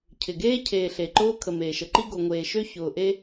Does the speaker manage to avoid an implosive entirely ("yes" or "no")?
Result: yes